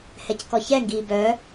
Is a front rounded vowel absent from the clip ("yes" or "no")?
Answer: no